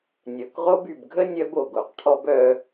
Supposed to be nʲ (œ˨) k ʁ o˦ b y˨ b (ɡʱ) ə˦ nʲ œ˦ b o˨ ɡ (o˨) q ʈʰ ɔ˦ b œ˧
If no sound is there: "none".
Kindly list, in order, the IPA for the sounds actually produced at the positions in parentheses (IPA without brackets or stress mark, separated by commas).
œ˨, ɡʱ, o˨